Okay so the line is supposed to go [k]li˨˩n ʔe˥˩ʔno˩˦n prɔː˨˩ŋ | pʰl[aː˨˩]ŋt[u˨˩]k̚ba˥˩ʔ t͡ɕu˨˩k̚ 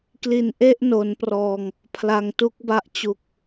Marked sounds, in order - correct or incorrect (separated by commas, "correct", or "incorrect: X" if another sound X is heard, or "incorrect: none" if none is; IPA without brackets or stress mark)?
correct, incorrect: a˨˩, incorrect: u˦˥